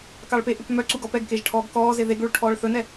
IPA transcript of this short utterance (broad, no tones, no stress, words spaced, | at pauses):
kɑɭpeʔʉp mœ ǀuɡɔ pɛɡkeʒ ʈʰɔːɡkɔːze ðeɡɭuɭ ʈʰɔːɭθɵnɛ